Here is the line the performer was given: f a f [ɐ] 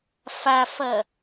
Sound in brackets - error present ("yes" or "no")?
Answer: no